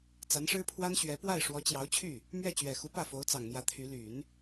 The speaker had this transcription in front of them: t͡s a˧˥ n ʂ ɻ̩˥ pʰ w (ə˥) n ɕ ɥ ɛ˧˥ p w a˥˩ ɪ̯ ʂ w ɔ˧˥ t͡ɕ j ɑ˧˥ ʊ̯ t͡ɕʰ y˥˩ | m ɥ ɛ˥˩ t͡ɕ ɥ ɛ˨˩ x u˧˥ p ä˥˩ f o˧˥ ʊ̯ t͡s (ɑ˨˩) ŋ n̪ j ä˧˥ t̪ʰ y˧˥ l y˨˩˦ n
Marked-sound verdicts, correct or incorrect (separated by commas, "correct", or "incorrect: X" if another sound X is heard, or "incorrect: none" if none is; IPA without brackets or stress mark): incorrect: a˥, correct